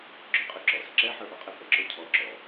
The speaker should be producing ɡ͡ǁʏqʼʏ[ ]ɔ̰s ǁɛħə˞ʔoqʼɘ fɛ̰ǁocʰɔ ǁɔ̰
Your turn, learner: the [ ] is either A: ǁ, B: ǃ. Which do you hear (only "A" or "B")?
A